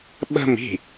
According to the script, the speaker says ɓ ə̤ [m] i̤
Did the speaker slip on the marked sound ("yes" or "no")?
no